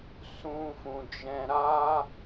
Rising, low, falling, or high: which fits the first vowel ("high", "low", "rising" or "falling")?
high